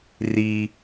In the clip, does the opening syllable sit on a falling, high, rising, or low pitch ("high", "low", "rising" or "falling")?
high